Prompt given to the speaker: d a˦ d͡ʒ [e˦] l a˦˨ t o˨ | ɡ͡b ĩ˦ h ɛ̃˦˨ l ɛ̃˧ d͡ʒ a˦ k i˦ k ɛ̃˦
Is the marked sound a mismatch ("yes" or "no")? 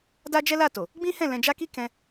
yes